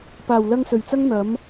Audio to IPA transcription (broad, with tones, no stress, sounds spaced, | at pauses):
p aː˨˩ w l ɐ˧ ŋ s ɵ˨˩ ɥ t͡s ɐ˥ ŋ n̪ ɐ˨˥ m